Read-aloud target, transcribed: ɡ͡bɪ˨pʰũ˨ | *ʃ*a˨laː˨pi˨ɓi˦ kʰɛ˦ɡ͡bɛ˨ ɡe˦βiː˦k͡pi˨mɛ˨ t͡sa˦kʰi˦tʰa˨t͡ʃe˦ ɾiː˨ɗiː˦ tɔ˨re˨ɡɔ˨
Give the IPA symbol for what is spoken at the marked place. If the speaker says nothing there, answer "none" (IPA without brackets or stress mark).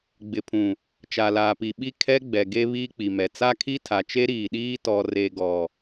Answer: t͡ʃ